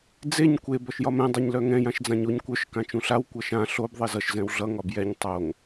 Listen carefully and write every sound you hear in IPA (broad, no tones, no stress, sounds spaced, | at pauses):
d͡z e ɲ kʷ e b ɔ ʃ j ɒ m ɛ̃ dˤ e ɲ l œ ŋ ɛ̃ j ã ʃ d͡z ã ɲ o ɲ kʷ œ ʃ k ã t͡ʃ ũ ɬ a w kʷ ʌ ʃ ã ɬ o b ðˤ e z ʌ ʃ z ɛ̃ w ɮ ʌ ŋ ɒ b j ɛ ɲ tˤ o ŋ